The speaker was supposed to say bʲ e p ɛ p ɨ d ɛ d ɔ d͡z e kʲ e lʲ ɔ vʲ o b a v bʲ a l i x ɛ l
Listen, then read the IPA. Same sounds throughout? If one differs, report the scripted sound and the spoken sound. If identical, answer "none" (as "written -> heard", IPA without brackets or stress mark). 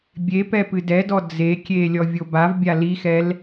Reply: none